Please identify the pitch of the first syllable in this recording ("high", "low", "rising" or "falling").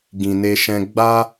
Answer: low